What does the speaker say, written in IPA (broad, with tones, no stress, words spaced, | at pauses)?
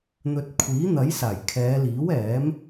n̪ɵ˨t̚ kʷʰiː˨˥n̪ɐ˨˥j saː˨˩jkʰɛː˨˧liː˨˥w ɛː˨˥m